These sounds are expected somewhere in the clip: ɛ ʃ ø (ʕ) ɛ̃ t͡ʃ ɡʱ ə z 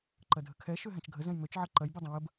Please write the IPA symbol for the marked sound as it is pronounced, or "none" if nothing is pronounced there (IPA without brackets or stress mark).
ɦ